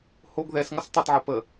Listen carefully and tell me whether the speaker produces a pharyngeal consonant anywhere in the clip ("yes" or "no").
yes